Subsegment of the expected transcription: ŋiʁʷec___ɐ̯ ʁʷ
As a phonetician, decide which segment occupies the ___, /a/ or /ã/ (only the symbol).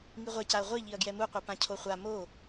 a